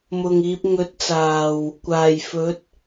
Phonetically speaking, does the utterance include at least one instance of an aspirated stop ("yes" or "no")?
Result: no